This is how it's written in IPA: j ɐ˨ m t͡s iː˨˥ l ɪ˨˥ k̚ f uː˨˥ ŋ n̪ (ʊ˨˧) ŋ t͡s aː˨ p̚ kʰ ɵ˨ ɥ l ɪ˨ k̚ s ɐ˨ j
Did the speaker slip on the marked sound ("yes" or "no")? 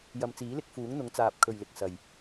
no